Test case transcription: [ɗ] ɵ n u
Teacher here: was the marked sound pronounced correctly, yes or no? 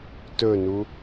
no